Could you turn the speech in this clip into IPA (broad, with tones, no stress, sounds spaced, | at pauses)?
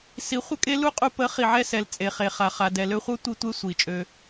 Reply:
s i˨˦ χʷ ə˦ kʼ e˦ l u˦ qʼ u˧ p ə˨˦ χ i˨ ʕ ɛ˧ s ɛ˨ l t͡sʼ e˨ χ e˨ χ a˨ χ a˨ d ɛ˨ l ø˧ χʷ œ˦ tʷ i˧ tʷ e˦ sʷ i˨ t͡ʃʼ ø˧